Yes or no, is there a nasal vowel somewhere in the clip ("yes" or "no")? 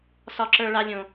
yes